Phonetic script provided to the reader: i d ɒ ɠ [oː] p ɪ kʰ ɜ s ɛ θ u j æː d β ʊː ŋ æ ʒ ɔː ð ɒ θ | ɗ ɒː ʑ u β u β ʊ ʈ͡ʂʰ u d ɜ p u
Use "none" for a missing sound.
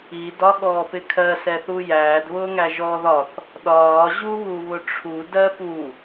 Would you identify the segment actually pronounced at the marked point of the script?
ɔː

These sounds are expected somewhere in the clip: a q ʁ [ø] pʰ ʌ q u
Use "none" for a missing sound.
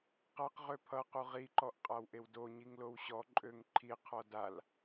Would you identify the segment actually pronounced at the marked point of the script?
ø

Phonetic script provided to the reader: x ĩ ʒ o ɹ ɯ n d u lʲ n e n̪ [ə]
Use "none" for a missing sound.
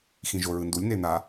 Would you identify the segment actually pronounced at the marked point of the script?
a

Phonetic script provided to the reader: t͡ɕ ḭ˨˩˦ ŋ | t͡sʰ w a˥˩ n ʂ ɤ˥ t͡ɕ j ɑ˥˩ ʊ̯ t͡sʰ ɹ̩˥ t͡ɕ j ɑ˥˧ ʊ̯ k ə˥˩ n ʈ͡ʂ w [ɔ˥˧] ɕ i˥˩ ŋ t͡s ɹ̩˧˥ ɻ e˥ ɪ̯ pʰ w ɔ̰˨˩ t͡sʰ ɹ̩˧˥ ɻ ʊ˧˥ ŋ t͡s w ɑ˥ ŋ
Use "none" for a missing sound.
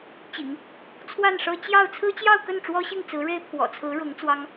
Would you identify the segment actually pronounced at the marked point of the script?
ɔ˥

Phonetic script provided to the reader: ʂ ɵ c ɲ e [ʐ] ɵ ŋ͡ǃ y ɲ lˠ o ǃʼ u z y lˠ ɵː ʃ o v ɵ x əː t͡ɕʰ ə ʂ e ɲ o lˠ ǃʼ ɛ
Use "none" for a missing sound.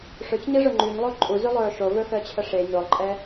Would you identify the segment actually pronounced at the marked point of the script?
ʐ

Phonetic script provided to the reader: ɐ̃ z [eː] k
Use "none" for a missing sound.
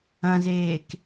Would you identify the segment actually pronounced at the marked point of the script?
eː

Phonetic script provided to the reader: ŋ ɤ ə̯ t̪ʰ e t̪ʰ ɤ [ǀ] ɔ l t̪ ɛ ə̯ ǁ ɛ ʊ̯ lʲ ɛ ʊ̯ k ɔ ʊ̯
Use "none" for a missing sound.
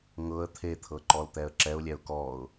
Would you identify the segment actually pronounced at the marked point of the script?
ǃ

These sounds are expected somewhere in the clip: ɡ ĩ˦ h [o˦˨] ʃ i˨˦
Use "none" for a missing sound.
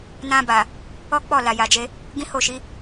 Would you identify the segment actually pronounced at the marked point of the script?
o˦˨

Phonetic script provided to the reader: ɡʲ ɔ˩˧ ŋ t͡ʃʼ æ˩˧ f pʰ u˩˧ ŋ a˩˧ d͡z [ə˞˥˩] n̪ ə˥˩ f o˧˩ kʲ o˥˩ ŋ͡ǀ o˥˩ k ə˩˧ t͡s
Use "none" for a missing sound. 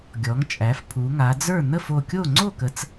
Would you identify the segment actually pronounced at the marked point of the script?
ə˞˥˩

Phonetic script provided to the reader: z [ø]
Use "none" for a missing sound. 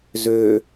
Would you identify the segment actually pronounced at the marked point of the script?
ø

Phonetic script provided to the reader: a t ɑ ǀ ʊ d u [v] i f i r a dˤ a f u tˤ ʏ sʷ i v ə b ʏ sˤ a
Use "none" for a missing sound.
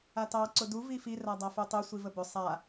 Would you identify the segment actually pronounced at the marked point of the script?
v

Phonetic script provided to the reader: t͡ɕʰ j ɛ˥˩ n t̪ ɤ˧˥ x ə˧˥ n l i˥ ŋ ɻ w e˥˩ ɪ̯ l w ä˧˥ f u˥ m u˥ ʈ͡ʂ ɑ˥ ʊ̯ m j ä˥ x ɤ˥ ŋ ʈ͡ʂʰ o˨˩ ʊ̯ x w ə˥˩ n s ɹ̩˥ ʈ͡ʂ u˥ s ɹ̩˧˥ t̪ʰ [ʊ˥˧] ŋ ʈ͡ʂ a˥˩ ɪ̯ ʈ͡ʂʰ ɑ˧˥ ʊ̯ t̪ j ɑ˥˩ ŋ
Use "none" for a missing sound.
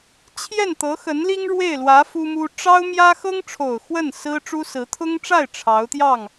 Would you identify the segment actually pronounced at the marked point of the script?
ʊ˥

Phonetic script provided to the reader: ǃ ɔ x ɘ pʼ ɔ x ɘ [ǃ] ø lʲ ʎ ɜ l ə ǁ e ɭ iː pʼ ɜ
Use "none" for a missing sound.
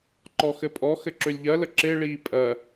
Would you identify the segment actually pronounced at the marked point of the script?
ǁ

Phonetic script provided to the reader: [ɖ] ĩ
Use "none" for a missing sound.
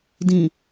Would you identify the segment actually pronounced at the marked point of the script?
d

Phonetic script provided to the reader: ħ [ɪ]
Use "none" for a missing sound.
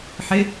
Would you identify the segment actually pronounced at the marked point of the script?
ɪ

